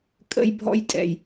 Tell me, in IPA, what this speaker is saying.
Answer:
kʼə̰˦jbʱɔ̰˦jtʼɛ̰˨j

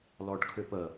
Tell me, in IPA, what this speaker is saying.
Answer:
lɔɖkʰʏpə

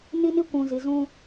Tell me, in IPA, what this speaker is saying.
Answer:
ni˦ni˦kʷũ˨zi˨ zũ˦

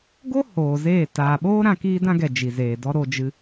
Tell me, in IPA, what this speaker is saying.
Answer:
ɡo˦ hoː˨zeː˦˨ taː˨ɓoː˦ ɾã˧kiː˦dã˦ɡɛ˨ d͡ʒi˨zeː˨dɔ˦ɾo˧ d͡ʒɨ˧

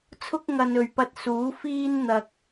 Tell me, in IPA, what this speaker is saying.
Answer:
t͡sʰʊ˥k̚ ŋɐ˨n ɵ˨ɥpɐ˥t̚ suː˨˥fiː˥n n̪ɐ˧k̚

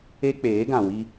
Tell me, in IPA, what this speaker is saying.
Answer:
e˦ k͡peː˨˦ ɡã˨wi˦

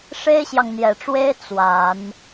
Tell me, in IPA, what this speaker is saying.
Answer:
ʂe˥ɪ̯ɕjɑ˨ŋn̪jɛ˨˩ʈ͡ʂwe˥ɪ̯ t͡swa˨˩˦n

